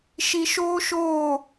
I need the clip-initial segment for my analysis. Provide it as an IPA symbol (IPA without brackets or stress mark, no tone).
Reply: ʃ